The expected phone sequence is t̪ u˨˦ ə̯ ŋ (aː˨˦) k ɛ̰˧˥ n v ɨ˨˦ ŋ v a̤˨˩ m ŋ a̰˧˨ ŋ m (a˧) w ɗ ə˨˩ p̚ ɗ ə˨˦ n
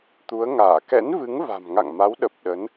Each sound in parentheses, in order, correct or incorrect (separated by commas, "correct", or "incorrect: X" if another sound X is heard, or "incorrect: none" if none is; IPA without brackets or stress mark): incorrect: aː˧˩, incorrect: a˨˦